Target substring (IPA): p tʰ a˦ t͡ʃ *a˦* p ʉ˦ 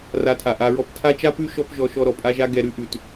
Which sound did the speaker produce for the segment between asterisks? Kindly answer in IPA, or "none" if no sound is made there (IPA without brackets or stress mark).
a˦